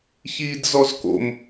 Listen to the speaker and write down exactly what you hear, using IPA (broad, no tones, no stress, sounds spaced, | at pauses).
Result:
ç iː d z ɔ z k o̰ m